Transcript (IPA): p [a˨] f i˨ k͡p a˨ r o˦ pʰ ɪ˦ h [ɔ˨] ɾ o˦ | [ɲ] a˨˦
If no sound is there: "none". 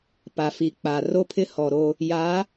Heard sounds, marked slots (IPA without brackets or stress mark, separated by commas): a˨, ɔ˨, j